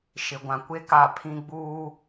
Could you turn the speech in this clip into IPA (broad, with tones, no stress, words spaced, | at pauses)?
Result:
ʃɪ˨ɡʷã˨kʷe˦ ka˦˨pʰĩ˦ ɡ͡buː˦